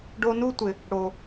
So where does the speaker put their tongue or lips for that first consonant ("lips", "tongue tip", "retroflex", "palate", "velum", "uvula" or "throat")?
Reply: retroflex